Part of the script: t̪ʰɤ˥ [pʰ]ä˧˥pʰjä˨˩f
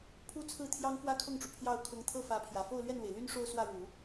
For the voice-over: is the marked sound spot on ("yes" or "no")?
no